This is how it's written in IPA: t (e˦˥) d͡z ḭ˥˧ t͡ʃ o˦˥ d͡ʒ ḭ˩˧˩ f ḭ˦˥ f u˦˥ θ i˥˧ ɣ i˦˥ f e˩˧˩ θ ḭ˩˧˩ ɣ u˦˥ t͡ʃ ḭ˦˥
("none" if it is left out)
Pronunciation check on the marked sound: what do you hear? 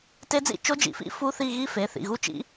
e˦˥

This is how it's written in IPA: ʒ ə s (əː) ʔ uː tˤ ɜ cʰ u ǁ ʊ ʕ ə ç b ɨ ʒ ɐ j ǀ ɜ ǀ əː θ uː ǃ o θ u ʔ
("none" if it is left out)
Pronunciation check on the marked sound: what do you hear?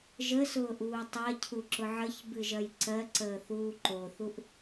ʊː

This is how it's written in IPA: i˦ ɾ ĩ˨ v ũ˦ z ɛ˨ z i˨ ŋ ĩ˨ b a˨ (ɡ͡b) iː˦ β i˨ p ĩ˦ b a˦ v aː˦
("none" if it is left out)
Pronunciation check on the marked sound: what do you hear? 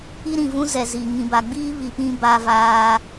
ɡ͡b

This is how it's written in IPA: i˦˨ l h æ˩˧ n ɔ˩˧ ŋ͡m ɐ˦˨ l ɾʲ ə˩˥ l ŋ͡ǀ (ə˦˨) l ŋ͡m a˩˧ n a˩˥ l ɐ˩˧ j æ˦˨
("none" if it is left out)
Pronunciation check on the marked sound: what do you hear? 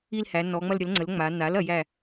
ə˩˥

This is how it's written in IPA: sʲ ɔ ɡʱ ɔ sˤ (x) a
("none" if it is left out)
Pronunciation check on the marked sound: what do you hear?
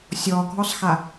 x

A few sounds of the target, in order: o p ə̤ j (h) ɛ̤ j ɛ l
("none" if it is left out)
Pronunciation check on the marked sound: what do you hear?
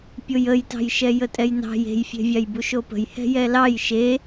h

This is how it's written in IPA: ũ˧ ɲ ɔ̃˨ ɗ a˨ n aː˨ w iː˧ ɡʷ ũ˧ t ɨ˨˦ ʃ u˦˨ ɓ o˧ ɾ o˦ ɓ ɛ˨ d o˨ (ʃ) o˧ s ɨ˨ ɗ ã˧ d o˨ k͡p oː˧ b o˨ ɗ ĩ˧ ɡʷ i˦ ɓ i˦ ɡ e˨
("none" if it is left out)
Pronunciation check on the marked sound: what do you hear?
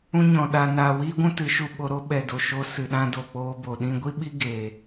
ʃ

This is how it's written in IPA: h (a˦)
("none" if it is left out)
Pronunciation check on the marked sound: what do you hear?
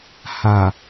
a˨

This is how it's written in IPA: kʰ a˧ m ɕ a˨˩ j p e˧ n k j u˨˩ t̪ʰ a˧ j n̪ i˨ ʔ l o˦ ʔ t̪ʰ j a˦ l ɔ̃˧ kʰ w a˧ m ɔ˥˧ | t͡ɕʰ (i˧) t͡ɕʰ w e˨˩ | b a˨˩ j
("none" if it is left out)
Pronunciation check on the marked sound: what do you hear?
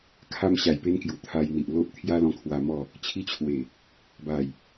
i˧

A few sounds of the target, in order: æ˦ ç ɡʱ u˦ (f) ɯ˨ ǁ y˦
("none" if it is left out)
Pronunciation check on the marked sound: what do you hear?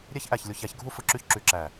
f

